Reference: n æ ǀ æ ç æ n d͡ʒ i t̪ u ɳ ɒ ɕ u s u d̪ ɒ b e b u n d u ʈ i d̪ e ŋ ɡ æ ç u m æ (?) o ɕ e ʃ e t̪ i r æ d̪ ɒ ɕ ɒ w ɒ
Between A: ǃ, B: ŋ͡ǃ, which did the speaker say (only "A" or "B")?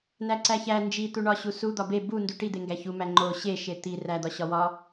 B